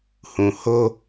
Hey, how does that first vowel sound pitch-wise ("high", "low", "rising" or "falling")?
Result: low